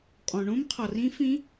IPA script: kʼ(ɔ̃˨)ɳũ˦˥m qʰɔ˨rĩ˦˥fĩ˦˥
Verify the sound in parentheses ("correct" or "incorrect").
correct